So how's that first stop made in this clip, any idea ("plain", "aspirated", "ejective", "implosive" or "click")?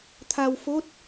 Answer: aspirated